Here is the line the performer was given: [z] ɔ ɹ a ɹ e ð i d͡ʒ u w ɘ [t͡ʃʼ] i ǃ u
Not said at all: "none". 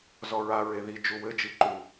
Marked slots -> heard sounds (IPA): z, d͡ʒ

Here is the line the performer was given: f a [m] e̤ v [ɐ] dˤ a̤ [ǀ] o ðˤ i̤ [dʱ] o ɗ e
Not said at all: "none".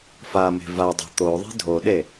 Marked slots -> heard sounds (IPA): m, a, t̪, dʱ

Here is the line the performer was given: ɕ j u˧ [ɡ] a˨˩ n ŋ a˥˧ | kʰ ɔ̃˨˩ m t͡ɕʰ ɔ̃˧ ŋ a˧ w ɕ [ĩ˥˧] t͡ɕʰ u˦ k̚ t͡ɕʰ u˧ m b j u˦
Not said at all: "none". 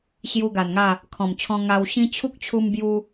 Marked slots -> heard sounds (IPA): ɡ, ĩ˦

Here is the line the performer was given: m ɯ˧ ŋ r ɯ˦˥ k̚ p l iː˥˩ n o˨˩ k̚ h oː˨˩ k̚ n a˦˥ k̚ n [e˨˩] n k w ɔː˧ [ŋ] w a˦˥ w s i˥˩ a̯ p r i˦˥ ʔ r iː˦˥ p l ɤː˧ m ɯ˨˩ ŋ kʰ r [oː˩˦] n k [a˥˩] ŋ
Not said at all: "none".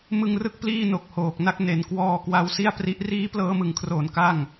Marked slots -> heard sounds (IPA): e˩˦, k, oː˩˦, a˥˩

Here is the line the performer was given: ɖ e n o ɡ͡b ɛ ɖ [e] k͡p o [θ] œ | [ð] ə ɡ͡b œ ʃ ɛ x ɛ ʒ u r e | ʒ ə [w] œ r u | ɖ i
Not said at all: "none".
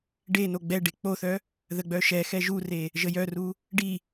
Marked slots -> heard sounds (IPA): e, θ, ð, j

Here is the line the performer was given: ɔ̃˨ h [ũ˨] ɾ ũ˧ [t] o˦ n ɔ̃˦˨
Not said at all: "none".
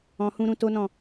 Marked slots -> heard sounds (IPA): ũ˧, t

